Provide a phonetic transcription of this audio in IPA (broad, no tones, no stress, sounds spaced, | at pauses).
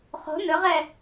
χ o̤ n ɵ ʁ ɛ